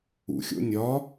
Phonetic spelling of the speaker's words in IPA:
ṵ xʲ o̰ nʲ ɒ

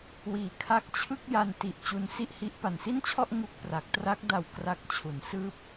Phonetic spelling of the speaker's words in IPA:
w iː˨˩ kʰ a˦˥ k̚ t͡ɕʰ ɯ˥˩ k̚ j a˧ n t i˨˩ ʔ t͡ɕ u˧ n s i˥˩ ʔ h i˦˥ ʔ p a˨˩ n s i˥˩ n t͡ɕʰ ɔ˥˩ ʔ ŋ u˥˩ k̚ p r a˨˩ k̚ t r a˦˥ k̚ d a˨˩ w k r a˦˥ k̚ t͡ɕʰ u˩˦ n s ɯː˦˥ p̚

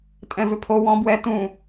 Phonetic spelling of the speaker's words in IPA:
tʼ ɛ̃ v ʏ pʰ o w ɔ̃ b w ɛ t ũ

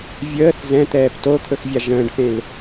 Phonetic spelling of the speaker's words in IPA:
vʲ əː θ z ɛ̃ t̪ ɛː p t o t̪ʰ ɵ x vʲ a ʒ ə̃ː ɖ θ ẽ l

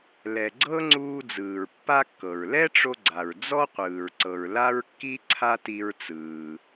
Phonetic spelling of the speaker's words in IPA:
l ɛ˩ ɡ͡ǀ ɤ˥ ŋ͡ǀ uː˧ d͡z ɯː˩ ɹ pː a˥ kː ɤ˩ ɹ l ɛ˥ ʈ͡ʂ o˧ ɡ͡ǀ a˩ ɹ d͡z ɔ˥ qʷ ɯː˩ ɹ ǀ ɤ˩ ɹ l a˥ ɹ kː i˥ ǀʰ a˥ t i˧ ɹ t͡s ɯː˩

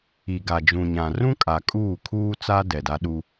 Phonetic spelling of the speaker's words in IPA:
i˨ ɡ a˨ d͡ʒ ũ˨ ɲ ã˨ r ũ˦ kʼ a˨ kʼ uː˦˨ kʰ uː˦ t͡s a˦ d ɛ˨ d a˦ ɗ u˦

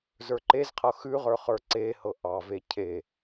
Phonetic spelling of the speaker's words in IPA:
z ə˞ ǃ e z qʰ ɤ x ʉ ʁ ə˞ χ ə˞ ǀ e h ɤ ʔ ɑ v e cʰ e

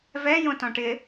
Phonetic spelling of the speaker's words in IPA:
v ɛ j õ t ɔ̃ ʈ ɪ

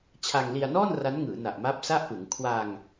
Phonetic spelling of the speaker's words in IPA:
t͡ɕʰ a˧ ŋ l i˧ a̯ n ɔː˥˩ n r a˦˥ n ŋ ɯː˩˦ n a˨˩ ʔ m a˦˥ p̚ s a˥˩ ʔ p ɯ˩˦ ŋ kʰ w a˧ ŋ

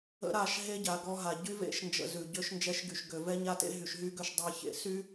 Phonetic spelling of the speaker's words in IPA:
ə̰˦ ɾ a˦˨ ʃ ɦ e˦ ɟ a˨ ɡ ɔ˦ ɦ a˨ ɟ y˦ v ḛ˦ ʃ n d͡ʒ ə̰˨ z ʉ˨ ɟ ø˦ ʃ n d͡ʒ ɛ˦ ʃ ɡ y˨ ʃ ɡ ø˨ v ɛ˦ ɲ a˦ t ḛ˦ ɦ y˨ ʃ ɦ y˦ ɡ ø˦ ʃ dˤ e˦ ç ḛ˨ s y˦

